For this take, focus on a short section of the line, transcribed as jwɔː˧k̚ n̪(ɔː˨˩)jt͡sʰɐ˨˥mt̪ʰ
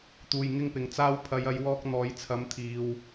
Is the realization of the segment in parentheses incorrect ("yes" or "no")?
yes